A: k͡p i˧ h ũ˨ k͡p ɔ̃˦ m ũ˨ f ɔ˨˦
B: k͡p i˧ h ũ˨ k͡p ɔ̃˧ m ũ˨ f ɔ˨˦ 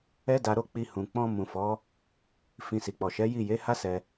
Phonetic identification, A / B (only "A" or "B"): B